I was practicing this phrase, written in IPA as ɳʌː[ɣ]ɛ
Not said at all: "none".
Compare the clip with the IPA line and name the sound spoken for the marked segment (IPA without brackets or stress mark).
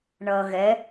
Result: ɣ